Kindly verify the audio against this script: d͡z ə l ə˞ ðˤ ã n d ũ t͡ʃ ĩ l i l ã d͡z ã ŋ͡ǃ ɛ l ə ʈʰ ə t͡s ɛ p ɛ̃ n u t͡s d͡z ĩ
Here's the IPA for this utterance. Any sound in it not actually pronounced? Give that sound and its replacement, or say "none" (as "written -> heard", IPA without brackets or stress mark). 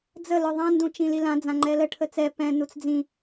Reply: none